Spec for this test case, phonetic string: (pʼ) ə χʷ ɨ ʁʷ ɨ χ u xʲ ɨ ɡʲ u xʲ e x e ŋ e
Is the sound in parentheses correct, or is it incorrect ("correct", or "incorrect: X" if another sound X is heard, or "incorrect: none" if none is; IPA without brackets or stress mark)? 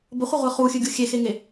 incorrect: b